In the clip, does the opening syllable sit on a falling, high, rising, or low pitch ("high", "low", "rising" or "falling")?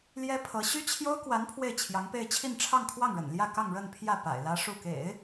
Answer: high